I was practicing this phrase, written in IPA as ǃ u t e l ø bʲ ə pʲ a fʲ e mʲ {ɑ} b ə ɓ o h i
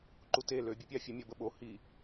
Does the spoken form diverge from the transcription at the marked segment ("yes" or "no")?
yes